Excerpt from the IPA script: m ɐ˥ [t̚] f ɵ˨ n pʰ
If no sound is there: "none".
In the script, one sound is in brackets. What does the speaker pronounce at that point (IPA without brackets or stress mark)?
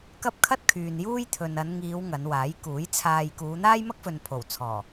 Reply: k̚